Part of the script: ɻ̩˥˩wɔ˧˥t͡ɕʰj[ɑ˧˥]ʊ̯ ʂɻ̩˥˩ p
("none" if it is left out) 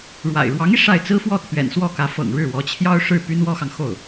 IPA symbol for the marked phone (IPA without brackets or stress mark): ɑ˥